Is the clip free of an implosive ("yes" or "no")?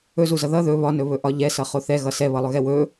yes